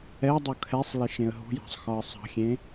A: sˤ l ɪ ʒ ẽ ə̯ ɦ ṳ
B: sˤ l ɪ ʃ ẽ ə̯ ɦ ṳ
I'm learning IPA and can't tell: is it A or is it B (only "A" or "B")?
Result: B